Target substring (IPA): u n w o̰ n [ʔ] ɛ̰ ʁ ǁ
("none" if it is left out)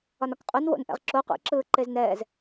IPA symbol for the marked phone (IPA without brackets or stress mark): ʔ